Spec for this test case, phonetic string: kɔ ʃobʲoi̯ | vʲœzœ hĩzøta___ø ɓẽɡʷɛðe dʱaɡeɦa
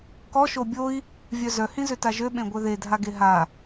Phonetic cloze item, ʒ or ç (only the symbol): ʒ